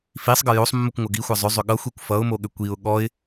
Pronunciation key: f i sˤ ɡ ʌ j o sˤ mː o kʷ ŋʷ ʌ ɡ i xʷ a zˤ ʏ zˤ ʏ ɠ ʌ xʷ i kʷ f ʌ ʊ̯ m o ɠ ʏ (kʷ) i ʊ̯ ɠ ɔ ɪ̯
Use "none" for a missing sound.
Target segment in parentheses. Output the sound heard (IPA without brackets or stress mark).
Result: kʷ